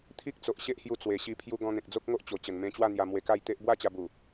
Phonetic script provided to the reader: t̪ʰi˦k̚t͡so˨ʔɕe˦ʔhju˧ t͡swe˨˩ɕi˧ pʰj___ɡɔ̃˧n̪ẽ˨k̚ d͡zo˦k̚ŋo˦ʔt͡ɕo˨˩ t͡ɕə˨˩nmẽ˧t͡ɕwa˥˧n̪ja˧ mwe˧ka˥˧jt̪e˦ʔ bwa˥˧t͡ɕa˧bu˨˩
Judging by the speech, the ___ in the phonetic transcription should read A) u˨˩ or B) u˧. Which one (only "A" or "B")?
B